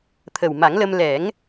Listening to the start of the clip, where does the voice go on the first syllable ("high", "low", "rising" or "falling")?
low